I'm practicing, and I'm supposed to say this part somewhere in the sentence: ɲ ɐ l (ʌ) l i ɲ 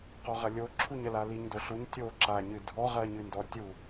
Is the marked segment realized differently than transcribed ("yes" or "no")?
yes